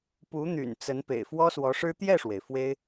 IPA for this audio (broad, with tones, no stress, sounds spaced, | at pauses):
p u˧˥ n̪ y̰˨˩ n t͡s ə˧˥ n p ḛ˨˩ ɪ̯ f w ɔ˥ s w ɔ˧˥ ʂ ɻ̩˥ t̪ j ɛ˥˩ ʂ w e˩ ɪ̯ f w e˥ ɪ̯